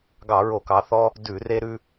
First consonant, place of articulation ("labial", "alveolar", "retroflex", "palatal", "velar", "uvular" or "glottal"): velar